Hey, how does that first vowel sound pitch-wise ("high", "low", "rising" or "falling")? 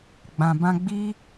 low